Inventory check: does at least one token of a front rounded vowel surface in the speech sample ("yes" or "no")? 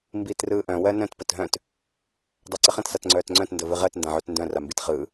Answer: yes